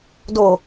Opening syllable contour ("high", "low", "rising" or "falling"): low